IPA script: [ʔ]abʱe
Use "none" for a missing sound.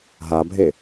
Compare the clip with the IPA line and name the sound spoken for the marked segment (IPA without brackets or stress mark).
ɦ